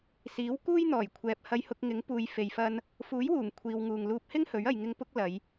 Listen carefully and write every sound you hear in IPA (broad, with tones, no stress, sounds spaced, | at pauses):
s iː˨˥ w k uː˥ j n̪ ɔː˨˩ j kʷʰ ɛː˨ p̚ h ɐ˧ j h ʊ˧ k̚ ŋ ɪ˨˥ ŋ p uː˨˧ j f e˨ j f ɐ˧ n | f uː˨˥ j w uː˨˩ ŋ kʷʰ iː˨ w ŋ uː˨ ŋ l uː˧ p̚ h ɪ˥ ŋ h ɵ˨˥ ɥ ɐ˨ j ŋ ɪ˨˧ ŋ p ʊ˧ k̚ l ɐ˨˧ j